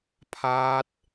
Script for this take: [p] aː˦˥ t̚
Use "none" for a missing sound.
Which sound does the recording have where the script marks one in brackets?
pʰ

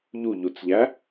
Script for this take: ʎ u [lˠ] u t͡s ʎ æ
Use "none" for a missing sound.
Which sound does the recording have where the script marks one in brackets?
ʎ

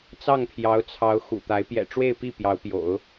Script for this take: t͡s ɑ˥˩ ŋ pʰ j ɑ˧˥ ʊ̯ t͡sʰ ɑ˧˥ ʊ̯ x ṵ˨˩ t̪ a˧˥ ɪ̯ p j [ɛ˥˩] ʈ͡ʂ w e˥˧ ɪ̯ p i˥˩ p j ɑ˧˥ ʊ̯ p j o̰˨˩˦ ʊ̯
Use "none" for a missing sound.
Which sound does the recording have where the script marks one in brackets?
ɛ̰˨˩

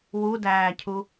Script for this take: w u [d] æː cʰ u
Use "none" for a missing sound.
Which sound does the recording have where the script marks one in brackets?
d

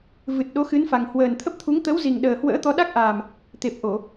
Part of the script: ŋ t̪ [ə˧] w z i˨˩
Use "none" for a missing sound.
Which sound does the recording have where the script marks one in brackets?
ə˨˦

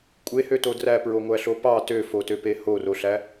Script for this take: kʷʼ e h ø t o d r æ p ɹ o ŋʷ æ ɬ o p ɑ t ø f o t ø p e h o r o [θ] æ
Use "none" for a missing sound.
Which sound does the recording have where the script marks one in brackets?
ɬ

